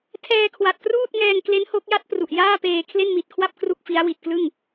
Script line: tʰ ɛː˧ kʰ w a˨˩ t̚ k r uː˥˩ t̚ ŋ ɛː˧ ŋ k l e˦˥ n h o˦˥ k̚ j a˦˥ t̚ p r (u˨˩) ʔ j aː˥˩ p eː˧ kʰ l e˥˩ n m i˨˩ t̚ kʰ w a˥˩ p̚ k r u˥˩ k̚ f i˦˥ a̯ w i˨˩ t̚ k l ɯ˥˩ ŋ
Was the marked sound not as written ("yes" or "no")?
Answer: no